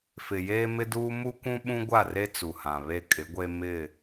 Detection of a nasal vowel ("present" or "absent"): present